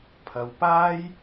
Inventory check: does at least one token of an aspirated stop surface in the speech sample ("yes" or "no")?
yes